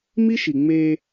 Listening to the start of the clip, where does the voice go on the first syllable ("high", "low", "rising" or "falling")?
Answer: high